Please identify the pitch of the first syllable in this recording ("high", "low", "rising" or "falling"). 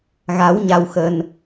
rising